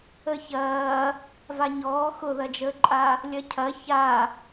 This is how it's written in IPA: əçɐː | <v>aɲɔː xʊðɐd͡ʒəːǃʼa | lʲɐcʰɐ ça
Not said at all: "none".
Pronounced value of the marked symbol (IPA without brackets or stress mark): v